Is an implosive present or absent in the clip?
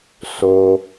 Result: absent